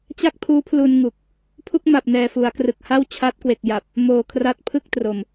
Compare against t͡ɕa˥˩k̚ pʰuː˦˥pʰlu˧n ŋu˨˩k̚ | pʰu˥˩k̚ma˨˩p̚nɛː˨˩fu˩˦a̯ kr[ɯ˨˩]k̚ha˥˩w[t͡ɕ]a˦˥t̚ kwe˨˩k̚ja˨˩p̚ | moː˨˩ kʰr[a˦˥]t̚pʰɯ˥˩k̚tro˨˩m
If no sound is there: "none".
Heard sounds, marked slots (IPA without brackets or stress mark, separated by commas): ɯ˨˩, t͡ɕʰ, a˦˥